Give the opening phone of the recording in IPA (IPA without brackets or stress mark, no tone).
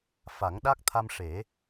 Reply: f